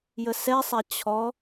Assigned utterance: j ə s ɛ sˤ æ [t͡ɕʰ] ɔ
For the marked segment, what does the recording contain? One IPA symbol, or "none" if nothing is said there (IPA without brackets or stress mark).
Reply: t͡ɕʰ